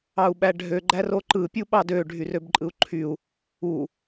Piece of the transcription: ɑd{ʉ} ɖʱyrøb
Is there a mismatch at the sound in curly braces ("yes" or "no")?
yes